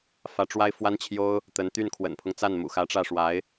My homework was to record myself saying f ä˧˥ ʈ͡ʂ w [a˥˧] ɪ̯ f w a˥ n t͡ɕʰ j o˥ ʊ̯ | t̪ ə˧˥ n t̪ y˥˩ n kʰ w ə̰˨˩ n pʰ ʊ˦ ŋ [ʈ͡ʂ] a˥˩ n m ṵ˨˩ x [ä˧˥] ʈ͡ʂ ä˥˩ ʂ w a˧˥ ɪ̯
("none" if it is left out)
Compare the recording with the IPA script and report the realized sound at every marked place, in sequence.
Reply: a˥, t͡s, ä˧˥

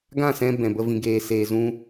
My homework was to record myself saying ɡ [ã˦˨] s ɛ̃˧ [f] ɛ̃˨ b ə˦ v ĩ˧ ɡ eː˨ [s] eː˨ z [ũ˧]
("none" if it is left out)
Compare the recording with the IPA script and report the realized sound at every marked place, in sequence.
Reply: ã˦˨, b, s, ũ˦

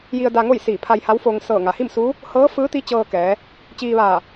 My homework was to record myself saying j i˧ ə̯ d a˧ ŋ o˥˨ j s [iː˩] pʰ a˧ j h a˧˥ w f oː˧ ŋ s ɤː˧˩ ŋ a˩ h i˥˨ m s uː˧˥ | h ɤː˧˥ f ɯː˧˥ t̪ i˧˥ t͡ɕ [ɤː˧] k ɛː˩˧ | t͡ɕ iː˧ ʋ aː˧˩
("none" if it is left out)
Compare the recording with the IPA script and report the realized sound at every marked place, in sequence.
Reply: iː˧˩, ɤː˧

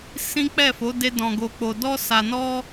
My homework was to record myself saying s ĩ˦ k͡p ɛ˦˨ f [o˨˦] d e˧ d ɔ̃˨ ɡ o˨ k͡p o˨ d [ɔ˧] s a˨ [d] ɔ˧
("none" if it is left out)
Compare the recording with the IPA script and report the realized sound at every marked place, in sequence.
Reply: o˨˦, ɔ˧, n

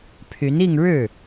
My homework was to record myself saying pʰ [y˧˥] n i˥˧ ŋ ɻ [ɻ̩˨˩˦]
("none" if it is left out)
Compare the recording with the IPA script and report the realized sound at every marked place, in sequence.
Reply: y˧˥, ɻ̩˥˩

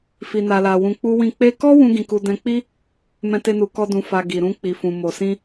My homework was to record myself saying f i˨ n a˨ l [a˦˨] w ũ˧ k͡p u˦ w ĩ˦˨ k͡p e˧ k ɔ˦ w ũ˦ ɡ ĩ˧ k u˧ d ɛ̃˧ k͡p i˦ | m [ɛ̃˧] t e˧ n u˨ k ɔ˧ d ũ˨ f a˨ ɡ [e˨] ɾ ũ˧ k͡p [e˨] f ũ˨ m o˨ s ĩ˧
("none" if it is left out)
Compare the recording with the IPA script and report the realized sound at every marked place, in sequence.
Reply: a˨, ɛ̃˧, i˨, i˨

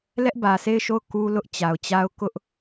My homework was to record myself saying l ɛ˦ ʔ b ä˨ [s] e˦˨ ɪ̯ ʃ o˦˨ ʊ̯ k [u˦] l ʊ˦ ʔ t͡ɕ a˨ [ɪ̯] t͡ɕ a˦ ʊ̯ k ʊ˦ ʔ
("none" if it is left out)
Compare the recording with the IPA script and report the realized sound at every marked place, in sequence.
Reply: s, u˦, ʊ̯

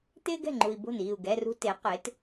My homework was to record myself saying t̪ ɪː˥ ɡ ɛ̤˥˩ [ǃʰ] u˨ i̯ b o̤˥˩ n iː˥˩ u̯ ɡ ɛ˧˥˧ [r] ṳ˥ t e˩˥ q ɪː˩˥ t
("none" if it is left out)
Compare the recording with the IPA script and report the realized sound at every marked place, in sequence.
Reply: ŋ͡ǃ, r

